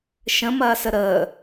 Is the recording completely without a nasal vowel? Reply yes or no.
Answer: no